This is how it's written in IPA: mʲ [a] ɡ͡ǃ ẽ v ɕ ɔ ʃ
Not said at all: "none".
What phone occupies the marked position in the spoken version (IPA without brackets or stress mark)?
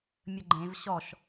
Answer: ə